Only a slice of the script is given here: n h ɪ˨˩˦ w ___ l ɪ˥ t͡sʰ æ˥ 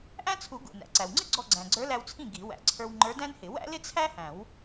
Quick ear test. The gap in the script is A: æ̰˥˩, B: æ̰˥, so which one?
B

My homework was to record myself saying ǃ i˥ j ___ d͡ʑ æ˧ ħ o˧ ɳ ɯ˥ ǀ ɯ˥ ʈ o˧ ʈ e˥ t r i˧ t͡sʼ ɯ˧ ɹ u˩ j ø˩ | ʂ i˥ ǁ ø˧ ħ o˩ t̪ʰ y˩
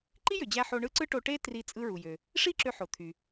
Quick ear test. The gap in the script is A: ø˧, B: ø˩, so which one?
B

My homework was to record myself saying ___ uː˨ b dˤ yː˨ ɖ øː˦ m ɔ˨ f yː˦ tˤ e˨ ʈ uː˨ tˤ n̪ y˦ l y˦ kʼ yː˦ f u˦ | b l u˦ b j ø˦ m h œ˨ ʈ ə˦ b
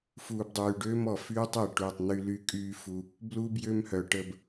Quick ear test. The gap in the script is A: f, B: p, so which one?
A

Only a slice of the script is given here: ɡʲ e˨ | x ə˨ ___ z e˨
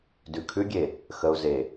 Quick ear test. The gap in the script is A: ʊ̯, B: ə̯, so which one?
A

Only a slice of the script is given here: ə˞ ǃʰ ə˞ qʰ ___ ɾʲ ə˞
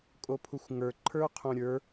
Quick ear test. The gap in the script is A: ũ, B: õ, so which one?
B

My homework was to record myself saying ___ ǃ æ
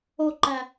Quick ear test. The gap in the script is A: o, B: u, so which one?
A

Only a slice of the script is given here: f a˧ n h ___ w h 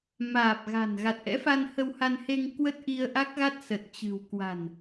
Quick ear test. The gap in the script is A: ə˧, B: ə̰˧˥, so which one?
A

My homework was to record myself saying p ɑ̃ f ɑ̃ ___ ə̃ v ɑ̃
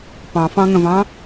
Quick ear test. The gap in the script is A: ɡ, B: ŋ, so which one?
B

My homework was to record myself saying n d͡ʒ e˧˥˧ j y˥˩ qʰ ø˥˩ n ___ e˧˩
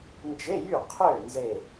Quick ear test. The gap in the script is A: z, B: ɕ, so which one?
A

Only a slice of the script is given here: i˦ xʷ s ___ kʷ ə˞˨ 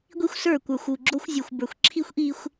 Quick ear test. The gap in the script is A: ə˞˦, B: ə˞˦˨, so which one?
B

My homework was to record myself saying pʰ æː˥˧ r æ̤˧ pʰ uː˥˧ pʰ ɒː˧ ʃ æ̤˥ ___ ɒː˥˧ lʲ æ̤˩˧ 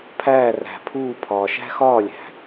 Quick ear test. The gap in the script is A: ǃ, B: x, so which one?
B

